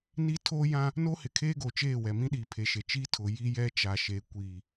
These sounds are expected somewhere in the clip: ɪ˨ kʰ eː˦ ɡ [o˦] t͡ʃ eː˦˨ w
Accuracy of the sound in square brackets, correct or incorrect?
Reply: incorrect